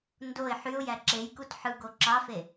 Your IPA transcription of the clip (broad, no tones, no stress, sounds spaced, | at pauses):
n d o ɪ̯ ħ y ʊ̯ j æ ǁ e j k u t ħ ɯ ɡ o ǁ ɑ f e